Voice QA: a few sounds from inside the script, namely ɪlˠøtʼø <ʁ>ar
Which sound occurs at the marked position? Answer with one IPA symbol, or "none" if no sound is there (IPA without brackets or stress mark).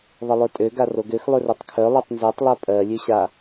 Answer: ɡ